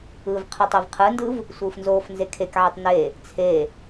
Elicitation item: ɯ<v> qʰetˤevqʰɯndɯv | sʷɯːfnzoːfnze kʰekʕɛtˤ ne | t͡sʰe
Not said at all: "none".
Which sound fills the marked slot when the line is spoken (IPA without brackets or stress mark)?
v